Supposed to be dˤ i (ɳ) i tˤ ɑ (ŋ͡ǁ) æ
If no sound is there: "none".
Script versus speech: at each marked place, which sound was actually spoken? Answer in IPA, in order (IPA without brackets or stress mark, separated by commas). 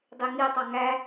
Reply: ŋ, ŋ